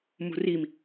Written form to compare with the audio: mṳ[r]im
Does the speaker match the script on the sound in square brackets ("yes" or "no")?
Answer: yes